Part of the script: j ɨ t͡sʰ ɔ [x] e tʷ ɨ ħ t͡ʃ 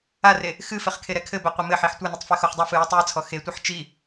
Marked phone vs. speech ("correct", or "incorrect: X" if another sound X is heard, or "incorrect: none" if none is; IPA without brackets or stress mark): correct